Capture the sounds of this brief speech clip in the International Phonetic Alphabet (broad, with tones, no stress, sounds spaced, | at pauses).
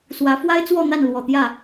s w ä˨˦ f w a˦ ɪ̯ t͡s w ɔ˥˨ n̪ a˥˨ n l w ɔ˨˩ t̪ j ä˥˨